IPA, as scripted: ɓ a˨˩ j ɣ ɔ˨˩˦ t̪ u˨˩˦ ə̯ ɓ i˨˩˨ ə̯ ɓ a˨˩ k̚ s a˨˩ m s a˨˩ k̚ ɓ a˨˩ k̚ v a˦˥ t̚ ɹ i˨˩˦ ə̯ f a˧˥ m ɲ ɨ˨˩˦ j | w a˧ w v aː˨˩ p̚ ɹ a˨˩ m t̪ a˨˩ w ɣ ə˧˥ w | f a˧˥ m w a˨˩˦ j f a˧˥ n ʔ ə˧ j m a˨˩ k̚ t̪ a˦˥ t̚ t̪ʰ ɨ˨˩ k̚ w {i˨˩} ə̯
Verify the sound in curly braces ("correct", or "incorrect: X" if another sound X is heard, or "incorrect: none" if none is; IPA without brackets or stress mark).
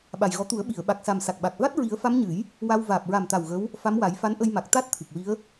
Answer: incorrect: i˧˥